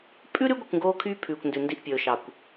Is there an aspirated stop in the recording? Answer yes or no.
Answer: yes